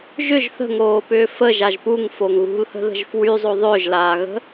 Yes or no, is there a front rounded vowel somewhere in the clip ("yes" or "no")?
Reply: yes